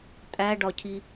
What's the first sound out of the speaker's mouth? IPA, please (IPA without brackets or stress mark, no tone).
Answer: tʼ